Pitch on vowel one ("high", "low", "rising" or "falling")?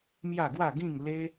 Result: falling